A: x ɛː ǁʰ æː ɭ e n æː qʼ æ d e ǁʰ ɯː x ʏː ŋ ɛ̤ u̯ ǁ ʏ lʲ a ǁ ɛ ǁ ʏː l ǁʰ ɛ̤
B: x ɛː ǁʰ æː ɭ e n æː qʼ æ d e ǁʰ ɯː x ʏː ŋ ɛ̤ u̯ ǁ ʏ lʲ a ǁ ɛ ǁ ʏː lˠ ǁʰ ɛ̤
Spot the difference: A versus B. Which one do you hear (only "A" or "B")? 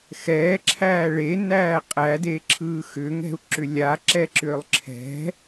B